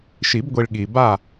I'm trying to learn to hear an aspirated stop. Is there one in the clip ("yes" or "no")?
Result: no